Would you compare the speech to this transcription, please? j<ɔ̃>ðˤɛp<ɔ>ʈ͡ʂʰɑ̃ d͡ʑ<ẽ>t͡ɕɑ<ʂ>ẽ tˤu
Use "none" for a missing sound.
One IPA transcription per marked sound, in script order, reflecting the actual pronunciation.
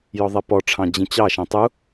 ɔ, ɔ, ĩ, ʃ

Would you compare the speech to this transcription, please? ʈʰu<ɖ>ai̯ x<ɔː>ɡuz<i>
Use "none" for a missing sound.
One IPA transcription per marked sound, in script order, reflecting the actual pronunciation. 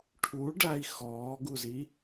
ɖ, ɔː, i

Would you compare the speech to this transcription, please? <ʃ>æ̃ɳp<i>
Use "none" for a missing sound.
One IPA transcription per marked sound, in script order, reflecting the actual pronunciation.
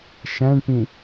ʃ, ĩ

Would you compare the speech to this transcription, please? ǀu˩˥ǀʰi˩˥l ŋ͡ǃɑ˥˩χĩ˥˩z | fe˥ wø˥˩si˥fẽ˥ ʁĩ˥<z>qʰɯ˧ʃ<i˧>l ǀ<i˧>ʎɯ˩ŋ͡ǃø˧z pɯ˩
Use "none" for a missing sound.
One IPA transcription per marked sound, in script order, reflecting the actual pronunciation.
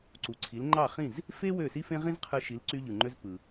z, i˩˥, y˧

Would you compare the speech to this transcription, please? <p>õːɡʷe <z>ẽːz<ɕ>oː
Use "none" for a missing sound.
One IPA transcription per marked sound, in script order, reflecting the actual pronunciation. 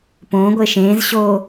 p, ʃ, ɕ

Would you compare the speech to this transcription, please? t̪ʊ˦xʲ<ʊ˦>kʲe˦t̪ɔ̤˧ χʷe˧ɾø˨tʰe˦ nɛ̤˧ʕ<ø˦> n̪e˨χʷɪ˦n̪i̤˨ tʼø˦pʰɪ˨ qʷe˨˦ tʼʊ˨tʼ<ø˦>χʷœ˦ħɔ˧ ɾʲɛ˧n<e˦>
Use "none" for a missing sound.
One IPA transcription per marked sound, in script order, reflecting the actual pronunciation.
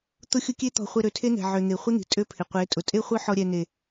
ʊ˦, ø˧, e˦, e˨

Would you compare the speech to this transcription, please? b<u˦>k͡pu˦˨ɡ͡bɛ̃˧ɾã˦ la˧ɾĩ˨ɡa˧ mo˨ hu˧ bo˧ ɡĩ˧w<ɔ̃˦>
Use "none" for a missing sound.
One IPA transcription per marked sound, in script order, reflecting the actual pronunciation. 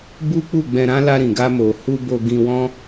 u˦, ɔ̃˦

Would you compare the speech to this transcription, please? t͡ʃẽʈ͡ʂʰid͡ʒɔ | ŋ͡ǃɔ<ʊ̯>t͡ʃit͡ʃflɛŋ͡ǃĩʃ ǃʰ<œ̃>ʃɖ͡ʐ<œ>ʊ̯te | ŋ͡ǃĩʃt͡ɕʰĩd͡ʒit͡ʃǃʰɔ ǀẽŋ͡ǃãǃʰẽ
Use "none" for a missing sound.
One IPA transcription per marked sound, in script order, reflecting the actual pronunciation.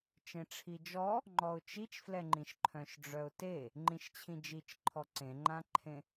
ʊ̯, œ̃, œ

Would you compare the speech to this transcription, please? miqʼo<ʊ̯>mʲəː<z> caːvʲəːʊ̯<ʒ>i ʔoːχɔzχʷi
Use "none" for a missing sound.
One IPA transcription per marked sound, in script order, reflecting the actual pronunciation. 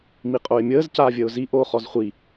ɪ̯, z, z

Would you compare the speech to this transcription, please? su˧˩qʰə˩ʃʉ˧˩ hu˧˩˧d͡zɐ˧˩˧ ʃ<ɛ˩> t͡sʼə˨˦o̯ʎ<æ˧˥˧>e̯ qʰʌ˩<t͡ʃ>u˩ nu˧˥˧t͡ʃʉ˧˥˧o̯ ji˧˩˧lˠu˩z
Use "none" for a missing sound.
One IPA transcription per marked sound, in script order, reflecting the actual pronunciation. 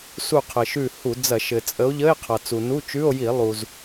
ɘ˩, ə˧˥˧, t͡s

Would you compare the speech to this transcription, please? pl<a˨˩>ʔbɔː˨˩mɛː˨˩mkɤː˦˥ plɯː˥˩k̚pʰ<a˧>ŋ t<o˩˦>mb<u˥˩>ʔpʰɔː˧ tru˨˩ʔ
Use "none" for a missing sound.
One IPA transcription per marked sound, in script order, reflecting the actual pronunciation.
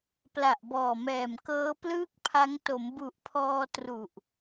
a˨˩, a˦˥, o˩˦, u˨˩

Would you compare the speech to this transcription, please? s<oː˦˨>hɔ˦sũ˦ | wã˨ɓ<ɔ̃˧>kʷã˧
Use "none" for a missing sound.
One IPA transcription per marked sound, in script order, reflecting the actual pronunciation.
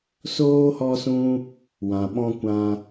oː˦, ɔ̃˧

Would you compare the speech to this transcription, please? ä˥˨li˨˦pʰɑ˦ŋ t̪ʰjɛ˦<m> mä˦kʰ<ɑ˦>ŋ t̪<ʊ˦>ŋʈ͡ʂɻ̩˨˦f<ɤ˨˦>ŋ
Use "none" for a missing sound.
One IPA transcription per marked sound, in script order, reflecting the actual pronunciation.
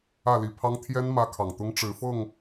n, ɑ˨, ʊ˦, ɤ˥˨

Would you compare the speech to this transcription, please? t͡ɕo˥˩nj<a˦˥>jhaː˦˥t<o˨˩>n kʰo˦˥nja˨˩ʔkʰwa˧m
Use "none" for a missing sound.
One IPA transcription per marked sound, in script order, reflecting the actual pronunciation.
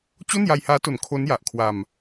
a˧, o˨˩

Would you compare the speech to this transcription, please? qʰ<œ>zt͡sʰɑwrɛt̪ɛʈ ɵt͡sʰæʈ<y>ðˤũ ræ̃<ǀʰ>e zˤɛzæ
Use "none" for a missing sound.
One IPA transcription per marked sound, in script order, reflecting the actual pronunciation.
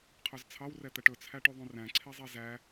œ, y, ǀʰ

